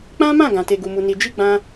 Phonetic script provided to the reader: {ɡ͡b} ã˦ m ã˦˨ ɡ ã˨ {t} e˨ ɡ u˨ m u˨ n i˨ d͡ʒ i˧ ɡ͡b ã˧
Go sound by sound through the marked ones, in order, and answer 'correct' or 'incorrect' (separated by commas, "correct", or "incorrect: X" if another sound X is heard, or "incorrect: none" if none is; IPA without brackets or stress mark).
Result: incorrect: k͡p, correct